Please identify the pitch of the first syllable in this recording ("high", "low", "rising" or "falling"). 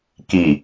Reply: low